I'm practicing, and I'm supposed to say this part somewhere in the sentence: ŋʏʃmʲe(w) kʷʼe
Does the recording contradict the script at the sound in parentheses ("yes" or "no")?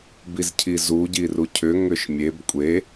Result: yes